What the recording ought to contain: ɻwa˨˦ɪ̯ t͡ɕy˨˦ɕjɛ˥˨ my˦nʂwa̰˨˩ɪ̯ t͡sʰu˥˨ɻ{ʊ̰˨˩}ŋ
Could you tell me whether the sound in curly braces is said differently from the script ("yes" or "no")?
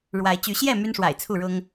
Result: yes